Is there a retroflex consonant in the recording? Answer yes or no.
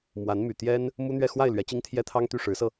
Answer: yes